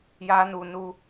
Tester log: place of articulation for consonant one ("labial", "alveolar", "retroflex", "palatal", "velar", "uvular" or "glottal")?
palatal